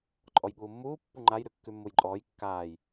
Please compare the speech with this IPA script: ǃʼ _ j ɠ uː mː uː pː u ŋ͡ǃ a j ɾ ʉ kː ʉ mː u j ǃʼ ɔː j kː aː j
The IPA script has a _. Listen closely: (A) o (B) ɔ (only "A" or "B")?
B